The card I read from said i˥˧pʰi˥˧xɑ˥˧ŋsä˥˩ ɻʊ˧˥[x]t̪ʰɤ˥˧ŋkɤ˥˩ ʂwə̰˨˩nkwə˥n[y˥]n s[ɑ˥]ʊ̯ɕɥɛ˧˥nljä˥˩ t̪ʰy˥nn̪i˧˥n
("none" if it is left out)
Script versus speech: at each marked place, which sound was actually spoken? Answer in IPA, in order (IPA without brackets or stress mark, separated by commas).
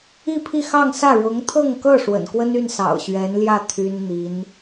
ŋ, y˥˩, ɑ̰˨˩